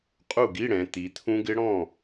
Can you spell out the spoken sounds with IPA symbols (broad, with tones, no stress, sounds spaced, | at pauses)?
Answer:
qʼ u˥˩ ɡ i˧˥˧ ɽ ɛ̃˩˧ t̪ i˩˧ t̪ʰ ũ˦˥ ɡ ɪ˦˥ ɽ ɔ̃˥˩